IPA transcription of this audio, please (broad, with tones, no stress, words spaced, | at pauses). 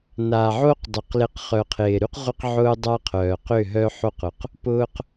na˨ʕo˦qdˤʏ˨q lɪ˨q χœ˨qʰɪː˨ɾy˦q ʁʷɪ˦qʕʊː˦dˤa˦qʰœː˨ qʏ˦˨ɦœ˦ħo˦qʊ˨q | pʊː˦q